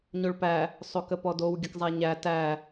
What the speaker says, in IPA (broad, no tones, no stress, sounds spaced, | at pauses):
ɲ o ɭ p æ | sˤ o k ə p ɔ d o w ɡʲ ə k zˤ æ ɲ æ t æ